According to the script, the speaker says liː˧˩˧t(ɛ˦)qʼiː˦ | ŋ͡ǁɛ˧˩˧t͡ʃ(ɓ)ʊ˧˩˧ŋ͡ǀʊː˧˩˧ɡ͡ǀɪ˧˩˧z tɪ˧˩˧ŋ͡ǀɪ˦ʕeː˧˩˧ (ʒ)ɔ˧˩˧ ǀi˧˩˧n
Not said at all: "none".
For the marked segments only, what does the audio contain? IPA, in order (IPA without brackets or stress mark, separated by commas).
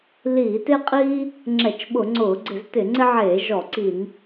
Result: e˦, ɓ, ʒ